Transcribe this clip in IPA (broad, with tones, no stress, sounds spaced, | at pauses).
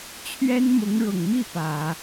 t͡ɕʰ ɥ ɛ˥ n m ʊ˧˥ ŋ ɻ ʊ˨˩ ŋ m i˥˩ p ä˨˩˦